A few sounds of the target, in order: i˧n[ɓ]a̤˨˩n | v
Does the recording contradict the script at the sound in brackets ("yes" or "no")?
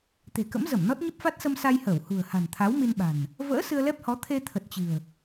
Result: no